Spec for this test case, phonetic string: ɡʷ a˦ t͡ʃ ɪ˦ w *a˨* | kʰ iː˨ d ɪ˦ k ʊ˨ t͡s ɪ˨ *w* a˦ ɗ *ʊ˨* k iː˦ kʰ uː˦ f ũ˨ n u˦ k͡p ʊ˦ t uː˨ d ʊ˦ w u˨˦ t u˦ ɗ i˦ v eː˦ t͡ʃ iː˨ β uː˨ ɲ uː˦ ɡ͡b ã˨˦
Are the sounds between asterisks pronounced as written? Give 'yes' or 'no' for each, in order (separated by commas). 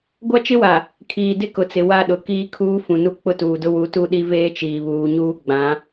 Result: yes, yes, yes